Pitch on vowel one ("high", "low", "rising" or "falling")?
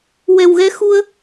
low